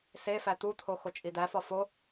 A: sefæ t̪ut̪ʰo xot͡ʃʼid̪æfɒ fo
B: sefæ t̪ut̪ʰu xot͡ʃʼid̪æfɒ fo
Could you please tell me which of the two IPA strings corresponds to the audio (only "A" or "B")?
A